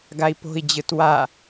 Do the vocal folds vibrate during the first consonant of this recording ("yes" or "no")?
yes